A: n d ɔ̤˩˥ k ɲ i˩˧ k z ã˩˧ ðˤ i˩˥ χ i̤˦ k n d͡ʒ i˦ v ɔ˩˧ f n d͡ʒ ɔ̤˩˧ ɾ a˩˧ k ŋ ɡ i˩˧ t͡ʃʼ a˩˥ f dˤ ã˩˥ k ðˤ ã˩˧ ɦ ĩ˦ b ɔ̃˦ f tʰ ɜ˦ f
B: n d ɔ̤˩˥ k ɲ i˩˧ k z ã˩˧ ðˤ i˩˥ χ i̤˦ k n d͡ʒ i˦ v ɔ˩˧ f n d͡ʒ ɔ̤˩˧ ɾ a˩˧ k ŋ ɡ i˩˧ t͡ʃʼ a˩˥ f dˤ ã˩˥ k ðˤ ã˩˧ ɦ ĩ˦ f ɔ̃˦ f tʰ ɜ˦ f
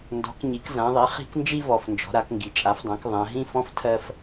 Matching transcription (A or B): B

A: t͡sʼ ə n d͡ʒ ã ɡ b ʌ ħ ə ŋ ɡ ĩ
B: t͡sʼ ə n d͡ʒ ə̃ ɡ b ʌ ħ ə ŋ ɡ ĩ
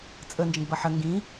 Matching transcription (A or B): B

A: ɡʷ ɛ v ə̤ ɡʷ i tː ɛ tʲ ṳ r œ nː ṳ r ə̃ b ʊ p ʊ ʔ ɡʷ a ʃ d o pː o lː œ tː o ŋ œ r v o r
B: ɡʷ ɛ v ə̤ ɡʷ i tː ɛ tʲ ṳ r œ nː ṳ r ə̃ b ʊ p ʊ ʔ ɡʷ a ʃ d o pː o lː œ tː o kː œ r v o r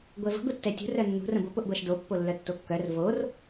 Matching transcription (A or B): B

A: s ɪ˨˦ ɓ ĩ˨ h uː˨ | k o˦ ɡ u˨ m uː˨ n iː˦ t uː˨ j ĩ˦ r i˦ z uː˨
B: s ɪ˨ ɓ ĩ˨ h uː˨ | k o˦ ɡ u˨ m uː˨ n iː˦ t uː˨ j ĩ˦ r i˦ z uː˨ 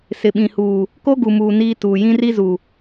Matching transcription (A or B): B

